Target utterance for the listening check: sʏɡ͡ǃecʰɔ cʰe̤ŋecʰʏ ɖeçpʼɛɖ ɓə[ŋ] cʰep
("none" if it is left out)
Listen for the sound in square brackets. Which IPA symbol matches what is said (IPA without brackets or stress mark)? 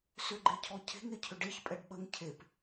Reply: ŋ